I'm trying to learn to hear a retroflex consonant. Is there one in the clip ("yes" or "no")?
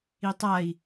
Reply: no